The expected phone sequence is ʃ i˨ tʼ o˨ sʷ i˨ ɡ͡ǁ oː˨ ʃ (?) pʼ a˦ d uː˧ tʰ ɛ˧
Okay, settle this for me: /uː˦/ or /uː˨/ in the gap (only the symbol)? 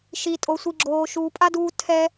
uː˨